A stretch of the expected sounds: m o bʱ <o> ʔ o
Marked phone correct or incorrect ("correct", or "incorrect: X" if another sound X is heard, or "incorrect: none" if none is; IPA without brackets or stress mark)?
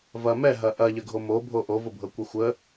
correct